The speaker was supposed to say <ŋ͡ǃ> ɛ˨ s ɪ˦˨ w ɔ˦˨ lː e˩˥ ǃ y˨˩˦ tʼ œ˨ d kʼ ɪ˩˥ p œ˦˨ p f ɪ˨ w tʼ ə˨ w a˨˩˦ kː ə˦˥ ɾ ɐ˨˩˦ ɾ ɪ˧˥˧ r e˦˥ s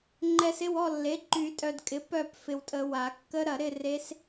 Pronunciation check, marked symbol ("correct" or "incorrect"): correct